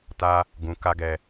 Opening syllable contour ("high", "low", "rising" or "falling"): high